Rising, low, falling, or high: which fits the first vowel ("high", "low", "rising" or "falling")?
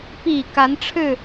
low